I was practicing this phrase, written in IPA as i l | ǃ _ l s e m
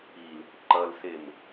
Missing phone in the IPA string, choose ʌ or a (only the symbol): ʌ